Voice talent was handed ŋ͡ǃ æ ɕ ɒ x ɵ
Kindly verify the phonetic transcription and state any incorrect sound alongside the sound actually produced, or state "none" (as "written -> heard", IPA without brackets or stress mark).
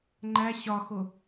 ɵ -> o